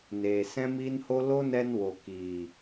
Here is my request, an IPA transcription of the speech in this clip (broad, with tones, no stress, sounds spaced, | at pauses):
n eː˨ s ɛ̃˦ m iː˦ n h o˦ l o˦ n ɛ˧ n w o˨ k iː˨